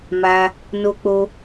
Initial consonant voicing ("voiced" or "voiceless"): voiced